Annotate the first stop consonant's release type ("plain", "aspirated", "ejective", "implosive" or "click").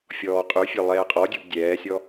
ejective